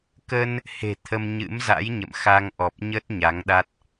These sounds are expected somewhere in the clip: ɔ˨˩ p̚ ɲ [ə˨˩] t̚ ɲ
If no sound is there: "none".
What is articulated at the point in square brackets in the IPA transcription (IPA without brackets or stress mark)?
ə˦˥